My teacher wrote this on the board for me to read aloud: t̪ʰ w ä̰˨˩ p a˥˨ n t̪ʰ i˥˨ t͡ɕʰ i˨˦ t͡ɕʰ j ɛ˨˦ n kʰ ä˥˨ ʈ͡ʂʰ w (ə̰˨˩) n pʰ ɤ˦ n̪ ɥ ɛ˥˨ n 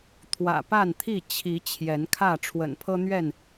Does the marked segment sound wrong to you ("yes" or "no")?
no